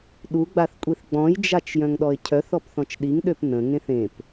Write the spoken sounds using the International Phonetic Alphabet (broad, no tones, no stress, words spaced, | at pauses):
ɗuɡ͡baθkʷʼiθ ɡ͡bɔ̃jd͡ʒat͡ʃ jœ̃ŋɗɔɪ̯cʰœθ ɔpθɔ̃t͡ʃɗiŋ ɗøpnə̃ŋẽθ ẽp